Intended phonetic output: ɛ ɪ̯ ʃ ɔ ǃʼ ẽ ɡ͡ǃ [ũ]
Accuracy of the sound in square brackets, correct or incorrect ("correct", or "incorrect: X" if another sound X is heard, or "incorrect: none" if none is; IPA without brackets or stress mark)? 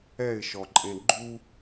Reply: incorrect: u